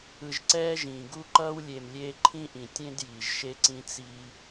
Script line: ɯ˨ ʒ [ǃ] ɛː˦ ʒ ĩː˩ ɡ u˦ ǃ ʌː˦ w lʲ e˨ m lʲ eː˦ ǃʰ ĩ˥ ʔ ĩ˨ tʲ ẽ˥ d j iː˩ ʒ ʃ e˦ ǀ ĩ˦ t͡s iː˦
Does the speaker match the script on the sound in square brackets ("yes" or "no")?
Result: no